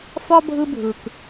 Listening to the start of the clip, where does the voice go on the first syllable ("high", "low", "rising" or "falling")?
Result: high